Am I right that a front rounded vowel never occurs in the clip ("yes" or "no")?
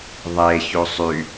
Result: no